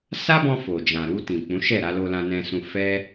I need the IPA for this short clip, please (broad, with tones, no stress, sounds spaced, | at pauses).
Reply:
s a˦ b ɔ̃˧ f o˨ d͡ʒ ã˨ ɾ u˧ t ĩ˨ k͡p ũ˨˦ ʃ ɛ˦˨ ɾ a˧ l o˧ l ã˧ n ɛ̃˧ s ũ˧ f ɛ˦